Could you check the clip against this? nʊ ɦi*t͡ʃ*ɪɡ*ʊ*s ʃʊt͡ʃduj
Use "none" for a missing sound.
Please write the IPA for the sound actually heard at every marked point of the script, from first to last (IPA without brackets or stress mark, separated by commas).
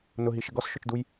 ʃ, ɔ